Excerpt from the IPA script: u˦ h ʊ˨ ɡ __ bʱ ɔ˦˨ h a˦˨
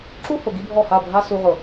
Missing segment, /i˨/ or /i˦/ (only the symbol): i˦